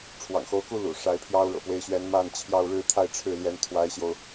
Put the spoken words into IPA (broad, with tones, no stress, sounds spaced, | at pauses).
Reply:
ʈ͡ʂʰ w ɑ̰˨˩ ŋ x o˧˥ ʊ̯ k u˥ l ṵ˨˩ ʂ a˧˥ ɪ̯ pʰ j ɑ˥ ʊ̯ ɻ ɤ̰˨˩ p w e˧˥ ɪ̯ ɕ ɥ ɛ˧˥ n m a˥˧ n t͡ɕʰ j ɑ˥˧ ʊ̯ ɻ ɻ̩˥˧ t̪ʰ a˥˧ ɪ̯ ʈ͡ʂʰ ɻ̩˥˩ l j ɛ˧˥ n t̪ʰ w a˧˥ ɪ̯ ɕ j o˧ ʊ̯